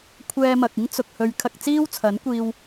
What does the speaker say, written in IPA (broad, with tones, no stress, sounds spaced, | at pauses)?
kʷʰ ɛː˧ m ɐ˨ k̚ ɪ˥ ŋ t͡s ʊ˨ k̚ h ɵ˨˧ ɥ kʰ ɐ˧ k̚ t͡s iː˥ w t͡sʰ ɐ˨˥ n kʷ iː˧ w